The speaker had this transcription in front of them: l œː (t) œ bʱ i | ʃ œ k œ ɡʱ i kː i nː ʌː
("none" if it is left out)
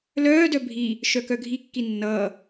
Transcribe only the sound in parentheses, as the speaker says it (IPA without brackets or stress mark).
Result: d